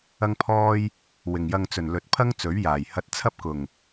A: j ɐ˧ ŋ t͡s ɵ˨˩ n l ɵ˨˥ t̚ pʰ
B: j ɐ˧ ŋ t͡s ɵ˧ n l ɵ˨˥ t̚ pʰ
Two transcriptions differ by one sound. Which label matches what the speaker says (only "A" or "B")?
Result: A